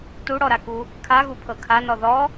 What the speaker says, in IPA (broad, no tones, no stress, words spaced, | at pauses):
tuɽɔɾaku | kʰaɣupʰɤ kʰanɔ ðɔ